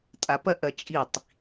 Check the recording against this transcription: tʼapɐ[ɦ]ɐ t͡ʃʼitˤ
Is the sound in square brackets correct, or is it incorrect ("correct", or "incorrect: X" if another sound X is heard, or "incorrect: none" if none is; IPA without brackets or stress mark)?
incorrect: ʔ